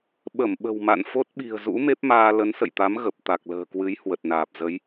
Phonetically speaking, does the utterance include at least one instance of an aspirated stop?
no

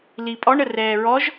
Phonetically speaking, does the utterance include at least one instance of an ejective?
yes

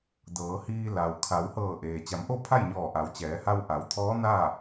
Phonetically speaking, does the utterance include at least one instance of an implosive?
no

